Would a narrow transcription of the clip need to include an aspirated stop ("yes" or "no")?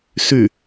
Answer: no